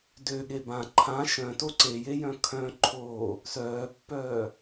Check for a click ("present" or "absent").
present